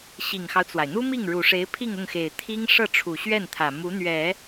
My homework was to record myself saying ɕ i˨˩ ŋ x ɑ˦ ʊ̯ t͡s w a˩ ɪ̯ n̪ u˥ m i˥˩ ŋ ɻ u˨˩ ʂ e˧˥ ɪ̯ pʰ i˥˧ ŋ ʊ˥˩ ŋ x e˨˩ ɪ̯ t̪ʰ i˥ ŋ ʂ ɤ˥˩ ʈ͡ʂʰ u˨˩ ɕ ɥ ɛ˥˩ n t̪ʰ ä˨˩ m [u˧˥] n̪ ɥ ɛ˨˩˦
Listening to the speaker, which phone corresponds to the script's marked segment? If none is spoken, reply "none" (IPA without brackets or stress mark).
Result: u˧˥